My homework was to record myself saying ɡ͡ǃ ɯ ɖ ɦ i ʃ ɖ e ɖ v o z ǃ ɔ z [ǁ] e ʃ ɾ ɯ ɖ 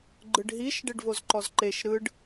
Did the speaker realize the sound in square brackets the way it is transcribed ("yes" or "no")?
no